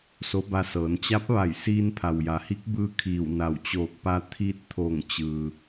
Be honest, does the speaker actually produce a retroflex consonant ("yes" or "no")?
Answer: no